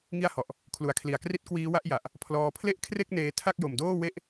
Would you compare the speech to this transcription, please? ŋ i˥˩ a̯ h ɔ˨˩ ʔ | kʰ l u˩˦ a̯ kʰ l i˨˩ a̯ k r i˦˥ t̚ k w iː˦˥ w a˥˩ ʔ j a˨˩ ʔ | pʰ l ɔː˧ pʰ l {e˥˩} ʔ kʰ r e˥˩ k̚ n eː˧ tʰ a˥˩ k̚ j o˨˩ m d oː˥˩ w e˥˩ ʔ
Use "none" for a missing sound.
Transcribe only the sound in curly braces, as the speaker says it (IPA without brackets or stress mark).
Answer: e˥˩